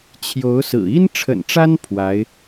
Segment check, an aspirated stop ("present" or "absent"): present